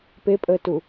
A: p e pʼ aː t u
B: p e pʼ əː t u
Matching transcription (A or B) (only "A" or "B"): B